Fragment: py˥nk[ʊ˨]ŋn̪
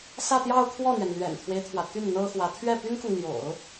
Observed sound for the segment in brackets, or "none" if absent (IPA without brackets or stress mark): ʊ˨